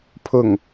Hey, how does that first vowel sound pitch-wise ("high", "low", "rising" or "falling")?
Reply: low